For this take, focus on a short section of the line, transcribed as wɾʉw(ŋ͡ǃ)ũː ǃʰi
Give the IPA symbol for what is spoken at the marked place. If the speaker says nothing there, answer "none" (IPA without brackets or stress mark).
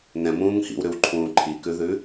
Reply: ǃʰ